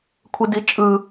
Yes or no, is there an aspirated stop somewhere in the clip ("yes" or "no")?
yes